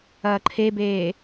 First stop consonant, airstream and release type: click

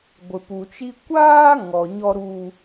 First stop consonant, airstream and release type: plain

